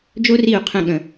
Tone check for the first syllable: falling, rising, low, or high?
high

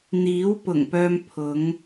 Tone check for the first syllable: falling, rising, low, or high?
rising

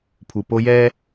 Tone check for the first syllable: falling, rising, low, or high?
low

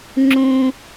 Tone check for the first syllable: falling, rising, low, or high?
high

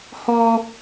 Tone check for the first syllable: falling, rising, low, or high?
high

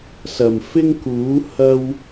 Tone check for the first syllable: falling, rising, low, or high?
low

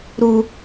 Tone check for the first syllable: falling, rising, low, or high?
high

